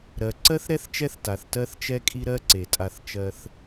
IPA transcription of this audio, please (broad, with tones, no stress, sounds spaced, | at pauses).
ɾ ɜ˩ ǀ ɜ˥ θ ɾ ɛ˥ θ t͡ʃ ɛ˦ θ t a˩ θ t ɜ˦ θ t͡ʃ ɛ˦ kʼ i˦ ɾ ɜ˦ ǀ e˩ tʼ a˨ θ t͡ʃ ɜ˨ θ